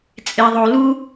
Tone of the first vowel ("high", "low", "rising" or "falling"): low